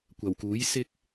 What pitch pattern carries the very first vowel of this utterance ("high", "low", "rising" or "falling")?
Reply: low